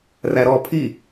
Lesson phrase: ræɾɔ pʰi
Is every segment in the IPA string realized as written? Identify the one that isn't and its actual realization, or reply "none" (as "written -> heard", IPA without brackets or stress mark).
none